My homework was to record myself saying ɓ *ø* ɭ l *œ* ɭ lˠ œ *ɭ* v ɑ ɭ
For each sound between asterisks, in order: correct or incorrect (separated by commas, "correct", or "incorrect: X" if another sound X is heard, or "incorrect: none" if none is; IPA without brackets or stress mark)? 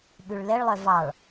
incorrect: ʉ, incorrect: ɛ, incorrect: none